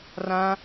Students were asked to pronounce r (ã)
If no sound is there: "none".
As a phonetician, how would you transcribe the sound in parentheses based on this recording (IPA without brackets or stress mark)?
ã